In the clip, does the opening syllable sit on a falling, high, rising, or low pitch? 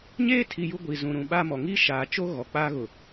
high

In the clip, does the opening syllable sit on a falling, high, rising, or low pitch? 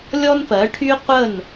high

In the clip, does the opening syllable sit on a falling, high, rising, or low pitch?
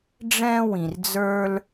high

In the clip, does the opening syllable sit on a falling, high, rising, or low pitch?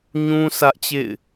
high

